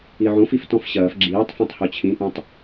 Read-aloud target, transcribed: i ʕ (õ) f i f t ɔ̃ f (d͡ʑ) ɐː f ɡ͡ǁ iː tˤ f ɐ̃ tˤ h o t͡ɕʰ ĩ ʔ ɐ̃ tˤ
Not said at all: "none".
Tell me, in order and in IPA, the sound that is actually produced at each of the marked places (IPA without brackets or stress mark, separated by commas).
õ, ɕ